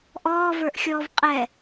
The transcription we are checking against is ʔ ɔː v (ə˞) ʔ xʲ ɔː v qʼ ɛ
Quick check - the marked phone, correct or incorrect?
correct